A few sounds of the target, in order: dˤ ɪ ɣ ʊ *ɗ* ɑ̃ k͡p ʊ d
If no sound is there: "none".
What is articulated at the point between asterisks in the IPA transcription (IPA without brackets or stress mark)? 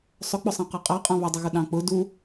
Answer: ɗ